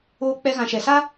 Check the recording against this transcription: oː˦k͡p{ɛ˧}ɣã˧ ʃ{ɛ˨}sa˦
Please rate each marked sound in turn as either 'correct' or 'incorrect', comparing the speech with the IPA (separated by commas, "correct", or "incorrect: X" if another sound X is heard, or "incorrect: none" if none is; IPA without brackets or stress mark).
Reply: incorrect: ɛ˦, correct